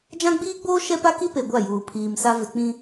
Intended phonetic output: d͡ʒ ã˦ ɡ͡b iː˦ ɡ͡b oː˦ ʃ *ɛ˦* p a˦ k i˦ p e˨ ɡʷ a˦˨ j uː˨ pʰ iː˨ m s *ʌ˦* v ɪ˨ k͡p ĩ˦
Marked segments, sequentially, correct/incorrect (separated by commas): correct, incorrect